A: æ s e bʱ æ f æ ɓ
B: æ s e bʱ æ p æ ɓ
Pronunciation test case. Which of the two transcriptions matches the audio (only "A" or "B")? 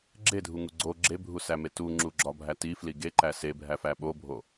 A